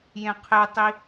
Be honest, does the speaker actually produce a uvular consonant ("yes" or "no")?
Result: yes